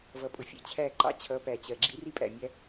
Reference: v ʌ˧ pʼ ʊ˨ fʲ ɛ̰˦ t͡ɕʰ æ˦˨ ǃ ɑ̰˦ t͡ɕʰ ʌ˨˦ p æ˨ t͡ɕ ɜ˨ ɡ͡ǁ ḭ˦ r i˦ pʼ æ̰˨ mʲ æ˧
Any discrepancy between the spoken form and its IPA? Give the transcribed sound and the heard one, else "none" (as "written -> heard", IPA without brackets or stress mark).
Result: none